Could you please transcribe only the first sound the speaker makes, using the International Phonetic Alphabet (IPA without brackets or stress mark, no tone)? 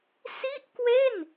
s